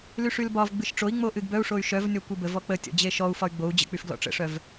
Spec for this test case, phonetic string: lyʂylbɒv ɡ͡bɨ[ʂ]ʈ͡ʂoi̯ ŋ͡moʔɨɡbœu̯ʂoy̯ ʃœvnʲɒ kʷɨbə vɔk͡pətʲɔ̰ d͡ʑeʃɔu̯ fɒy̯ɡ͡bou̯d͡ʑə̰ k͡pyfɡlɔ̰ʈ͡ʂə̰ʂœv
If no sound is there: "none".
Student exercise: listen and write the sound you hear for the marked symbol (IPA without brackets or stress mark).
ʃ